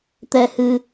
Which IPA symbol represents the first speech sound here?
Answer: t̪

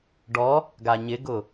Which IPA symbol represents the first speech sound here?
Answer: ɖ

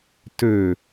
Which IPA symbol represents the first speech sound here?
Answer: t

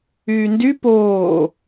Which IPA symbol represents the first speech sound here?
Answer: yː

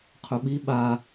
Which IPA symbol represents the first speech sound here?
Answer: qʰ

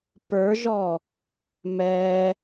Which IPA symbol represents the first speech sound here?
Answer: p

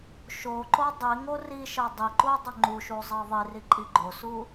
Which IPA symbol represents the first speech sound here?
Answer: ʃ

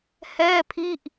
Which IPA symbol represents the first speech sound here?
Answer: h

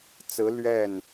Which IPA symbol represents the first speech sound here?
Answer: t͡s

